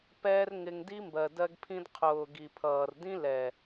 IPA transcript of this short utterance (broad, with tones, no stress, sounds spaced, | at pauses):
p ɛː˧ r ŋ ɪ˧ ŋ d i˦ m b ɜ˨ d ɜ˧ ɡ pʰ ĩ˧ d qʰ ʊː˨ ɡ i˨ pʰ ʌː˨ r d ĩ˦ l ɛ˨